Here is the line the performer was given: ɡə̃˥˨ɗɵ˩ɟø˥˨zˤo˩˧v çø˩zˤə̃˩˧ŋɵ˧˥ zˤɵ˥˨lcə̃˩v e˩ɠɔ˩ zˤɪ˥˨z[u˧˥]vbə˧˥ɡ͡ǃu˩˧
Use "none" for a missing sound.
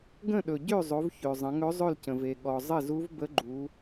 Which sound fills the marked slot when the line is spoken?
u˧˥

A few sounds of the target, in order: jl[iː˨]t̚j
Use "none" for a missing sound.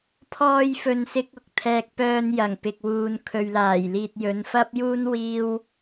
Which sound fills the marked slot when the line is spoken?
iː˨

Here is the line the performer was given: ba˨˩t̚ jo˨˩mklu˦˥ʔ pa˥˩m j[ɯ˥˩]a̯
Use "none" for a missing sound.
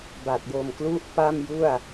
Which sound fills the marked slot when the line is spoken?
u˥˩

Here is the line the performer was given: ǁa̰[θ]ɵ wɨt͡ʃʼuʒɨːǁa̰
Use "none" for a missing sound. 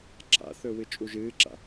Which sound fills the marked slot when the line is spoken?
θ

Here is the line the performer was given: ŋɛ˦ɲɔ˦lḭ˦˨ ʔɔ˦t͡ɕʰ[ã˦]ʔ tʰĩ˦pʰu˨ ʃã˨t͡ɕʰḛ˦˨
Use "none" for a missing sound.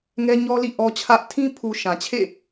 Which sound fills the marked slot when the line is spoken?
ä˦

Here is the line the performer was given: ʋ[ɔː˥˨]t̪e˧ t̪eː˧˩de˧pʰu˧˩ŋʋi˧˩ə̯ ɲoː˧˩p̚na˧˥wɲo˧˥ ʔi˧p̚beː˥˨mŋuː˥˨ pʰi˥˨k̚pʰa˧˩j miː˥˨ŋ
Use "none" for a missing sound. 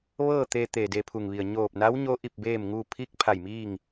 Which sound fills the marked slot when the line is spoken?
ɤː˥˨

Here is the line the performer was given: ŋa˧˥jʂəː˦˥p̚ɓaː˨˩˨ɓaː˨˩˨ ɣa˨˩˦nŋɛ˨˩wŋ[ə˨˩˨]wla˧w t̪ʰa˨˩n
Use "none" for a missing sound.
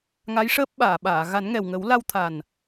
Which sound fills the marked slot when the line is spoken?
ə˨˩˦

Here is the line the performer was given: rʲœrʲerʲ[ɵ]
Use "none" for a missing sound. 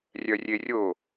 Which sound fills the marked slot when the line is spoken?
o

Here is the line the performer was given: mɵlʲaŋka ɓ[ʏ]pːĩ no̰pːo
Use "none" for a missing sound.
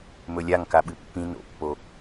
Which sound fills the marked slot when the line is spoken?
ɨ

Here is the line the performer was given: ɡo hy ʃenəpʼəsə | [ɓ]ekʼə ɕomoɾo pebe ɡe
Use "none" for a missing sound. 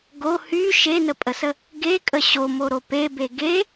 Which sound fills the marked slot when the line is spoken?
ɡ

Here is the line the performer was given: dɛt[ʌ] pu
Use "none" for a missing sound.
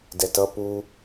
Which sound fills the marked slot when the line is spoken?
ʌ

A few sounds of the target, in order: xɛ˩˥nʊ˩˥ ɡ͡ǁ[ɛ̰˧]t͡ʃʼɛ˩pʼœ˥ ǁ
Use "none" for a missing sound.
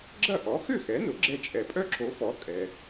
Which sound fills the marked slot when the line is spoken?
ɛ˧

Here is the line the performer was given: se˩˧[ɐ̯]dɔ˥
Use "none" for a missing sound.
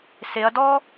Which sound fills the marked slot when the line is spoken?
ɐ̯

